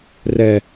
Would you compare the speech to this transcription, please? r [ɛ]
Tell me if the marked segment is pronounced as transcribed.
yes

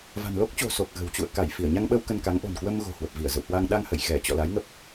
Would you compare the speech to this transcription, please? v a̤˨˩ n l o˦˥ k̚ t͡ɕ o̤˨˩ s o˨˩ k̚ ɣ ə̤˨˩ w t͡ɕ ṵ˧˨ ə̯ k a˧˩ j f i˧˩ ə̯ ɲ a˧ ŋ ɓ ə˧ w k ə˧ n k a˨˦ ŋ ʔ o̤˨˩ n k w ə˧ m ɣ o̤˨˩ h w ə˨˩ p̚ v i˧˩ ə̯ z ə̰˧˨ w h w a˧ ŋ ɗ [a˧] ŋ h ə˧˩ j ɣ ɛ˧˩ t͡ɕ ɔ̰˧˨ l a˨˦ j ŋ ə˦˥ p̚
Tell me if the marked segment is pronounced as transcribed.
yes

